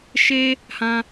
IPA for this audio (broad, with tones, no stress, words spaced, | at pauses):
ʃe˦ | hã˦